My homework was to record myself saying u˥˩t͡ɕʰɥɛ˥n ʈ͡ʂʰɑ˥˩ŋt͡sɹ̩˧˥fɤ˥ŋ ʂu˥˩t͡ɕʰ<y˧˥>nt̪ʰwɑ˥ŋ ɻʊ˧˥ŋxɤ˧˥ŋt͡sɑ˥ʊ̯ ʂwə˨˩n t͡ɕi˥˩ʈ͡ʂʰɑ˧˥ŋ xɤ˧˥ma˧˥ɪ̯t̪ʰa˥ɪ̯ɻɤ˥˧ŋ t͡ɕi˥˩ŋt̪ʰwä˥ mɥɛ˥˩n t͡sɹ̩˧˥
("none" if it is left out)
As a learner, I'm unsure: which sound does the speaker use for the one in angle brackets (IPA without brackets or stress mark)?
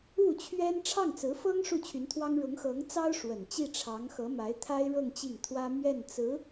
y˧˥